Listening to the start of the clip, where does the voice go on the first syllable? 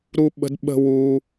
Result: high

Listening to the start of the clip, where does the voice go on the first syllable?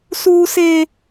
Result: high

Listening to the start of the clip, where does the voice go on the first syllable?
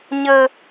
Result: high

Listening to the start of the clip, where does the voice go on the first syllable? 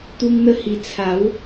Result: high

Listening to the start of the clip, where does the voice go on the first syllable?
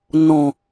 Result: low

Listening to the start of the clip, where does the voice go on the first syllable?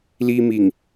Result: high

